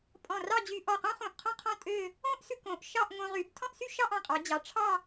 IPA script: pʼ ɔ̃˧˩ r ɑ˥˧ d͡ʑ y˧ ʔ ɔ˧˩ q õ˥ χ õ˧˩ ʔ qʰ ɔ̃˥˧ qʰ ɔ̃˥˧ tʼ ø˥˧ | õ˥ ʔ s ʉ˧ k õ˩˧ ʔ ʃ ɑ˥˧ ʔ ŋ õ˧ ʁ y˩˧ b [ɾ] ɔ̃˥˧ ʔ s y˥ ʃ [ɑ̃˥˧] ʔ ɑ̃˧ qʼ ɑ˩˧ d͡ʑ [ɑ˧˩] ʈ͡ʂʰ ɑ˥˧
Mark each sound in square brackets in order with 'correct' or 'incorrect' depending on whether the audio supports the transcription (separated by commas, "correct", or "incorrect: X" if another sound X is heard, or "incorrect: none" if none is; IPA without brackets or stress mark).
incorrect: tʰ, incorrect: ɑ˥˧, incorrect: ɑ˩˧